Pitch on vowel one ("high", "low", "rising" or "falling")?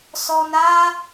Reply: low